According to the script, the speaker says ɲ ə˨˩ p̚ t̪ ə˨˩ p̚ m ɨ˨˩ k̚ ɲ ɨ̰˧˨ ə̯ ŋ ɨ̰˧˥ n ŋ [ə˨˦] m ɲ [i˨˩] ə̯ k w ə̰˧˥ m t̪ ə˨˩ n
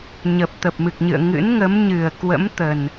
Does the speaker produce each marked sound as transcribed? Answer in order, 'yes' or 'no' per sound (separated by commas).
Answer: yes, no